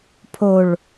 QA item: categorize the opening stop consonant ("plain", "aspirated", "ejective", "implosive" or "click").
aspirated